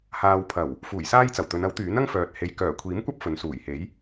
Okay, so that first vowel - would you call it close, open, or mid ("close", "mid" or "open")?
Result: open